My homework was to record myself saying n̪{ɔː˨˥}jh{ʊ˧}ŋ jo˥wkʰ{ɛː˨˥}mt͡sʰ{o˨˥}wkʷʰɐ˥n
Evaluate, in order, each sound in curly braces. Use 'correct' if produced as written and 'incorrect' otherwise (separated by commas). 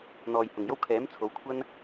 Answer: incorrect, incorrect, correct, correct